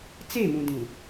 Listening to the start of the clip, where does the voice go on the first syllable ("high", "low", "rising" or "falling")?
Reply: falling